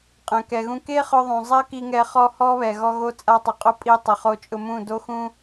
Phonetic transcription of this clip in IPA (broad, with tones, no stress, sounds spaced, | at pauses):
qʼ ɛ̃˨ k ɛ˨ ɣ ũ˧ k e˦ χ ʊ˧ ðˤ ũ˨ zˤ ɛ˦ k i˧ ŋ ɛ˧ χ ɔ˦ h ɔ˦ β ɛ˨ ɣ ɔ˧ ɣ o˧ t͡sʼ a˧ tˤ ʊ˨ qʼ ʊ˦ pʼ i˧ tˤ ɪ˨ χ o˧ t͡ʃʼ ʊ˧ m ũ˦˨ d o˦ x ũ˦